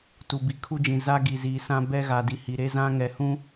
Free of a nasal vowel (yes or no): no